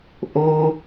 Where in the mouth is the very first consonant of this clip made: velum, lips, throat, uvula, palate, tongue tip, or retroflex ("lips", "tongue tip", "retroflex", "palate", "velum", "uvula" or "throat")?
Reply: throat